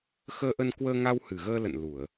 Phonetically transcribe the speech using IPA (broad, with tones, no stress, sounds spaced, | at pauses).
x əː˧ ʔ ə˧ n k w əː˧ ŋ a˧ w h ɨ˨˩ ɣ əː˧ l ə̰˧˨ n l u˧˩˨ ə̯